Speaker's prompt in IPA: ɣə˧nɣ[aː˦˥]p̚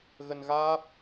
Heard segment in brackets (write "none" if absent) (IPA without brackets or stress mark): aː˦˥